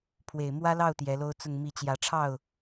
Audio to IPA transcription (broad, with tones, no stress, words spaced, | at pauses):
pʰwe˨˩ɪ̯mwä˥lɑ˥˩ʊ̯ t̪jɛ˧˥lo˥ʊ̯t͡sʊ˥˧ŋmi˥˩ t͡ɕjä˧˥ʈ͡ʂʰɑ˥˩ʊ̯